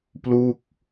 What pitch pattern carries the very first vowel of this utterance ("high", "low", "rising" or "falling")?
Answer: falling